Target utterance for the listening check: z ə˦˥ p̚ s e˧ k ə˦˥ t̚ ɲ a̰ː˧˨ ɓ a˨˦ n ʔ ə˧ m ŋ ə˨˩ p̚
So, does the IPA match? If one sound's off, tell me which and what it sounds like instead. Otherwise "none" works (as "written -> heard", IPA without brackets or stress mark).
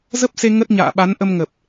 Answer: k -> ŋ